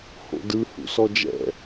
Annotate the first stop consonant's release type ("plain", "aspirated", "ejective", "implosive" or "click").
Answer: plain